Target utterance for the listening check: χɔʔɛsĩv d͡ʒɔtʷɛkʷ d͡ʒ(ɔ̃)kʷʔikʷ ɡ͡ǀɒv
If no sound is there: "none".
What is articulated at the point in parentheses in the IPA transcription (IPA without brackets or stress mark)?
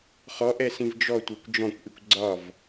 ɔ̃